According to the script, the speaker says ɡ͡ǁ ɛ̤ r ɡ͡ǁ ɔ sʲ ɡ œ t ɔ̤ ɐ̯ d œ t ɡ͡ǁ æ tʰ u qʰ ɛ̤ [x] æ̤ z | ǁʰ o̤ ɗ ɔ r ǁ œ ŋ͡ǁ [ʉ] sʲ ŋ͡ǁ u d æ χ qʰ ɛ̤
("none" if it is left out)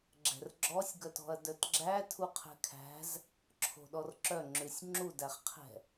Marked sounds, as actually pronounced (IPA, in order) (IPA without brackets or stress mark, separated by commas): kʰ, ʉ